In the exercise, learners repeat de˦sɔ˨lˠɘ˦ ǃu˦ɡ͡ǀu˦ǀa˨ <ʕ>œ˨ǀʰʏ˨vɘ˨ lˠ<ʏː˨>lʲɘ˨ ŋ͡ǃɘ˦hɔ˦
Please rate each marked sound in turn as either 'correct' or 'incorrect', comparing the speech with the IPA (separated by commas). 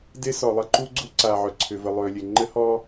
correct, correct